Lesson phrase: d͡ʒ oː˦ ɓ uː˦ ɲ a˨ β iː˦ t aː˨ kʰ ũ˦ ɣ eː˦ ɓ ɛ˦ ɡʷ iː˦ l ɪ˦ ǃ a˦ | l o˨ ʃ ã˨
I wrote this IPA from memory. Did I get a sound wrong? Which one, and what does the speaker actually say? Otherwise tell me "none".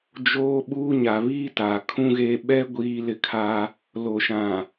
ǃ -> kʰ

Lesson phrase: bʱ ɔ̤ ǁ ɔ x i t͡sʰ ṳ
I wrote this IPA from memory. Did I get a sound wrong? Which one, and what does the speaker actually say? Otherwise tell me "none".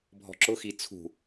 ɔ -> ʊ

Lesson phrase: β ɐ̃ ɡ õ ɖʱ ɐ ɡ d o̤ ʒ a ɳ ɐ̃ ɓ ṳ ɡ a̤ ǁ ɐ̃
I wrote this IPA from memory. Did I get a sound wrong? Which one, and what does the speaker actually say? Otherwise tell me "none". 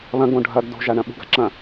none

